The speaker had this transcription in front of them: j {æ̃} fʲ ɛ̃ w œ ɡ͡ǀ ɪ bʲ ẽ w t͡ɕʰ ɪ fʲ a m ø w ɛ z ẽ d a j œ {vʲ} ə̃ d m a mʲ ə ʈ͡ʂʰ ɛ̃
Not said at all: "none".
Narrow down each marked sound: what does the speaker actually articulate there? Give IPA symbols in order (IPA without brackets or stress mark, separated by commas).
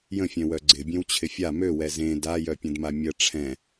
ə̃, pʲ